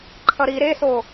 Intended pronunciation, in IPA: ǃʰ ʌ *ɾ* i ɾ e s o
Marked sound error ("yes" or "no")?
no